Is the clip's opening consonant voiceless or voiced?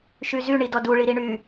voiceless